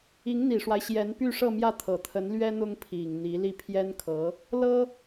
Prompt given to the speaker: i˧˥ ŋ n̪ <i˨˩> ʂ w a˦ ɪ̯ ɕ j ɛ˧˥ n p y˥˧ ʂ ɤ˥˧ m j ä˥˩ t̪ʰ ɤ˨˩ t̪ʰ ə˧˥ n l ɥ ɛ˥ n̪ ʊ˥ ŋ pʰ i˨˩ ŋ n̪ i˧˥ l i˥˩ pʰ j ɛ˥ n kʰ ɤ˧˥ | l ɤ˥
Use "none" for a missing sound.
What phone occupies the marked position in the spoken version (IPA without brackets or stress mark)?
i˨˩